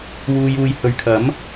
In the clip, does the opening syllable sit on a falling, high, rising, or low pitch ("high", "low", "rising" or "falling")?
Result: low